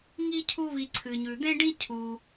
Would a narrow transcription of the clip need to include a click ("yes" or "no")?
yes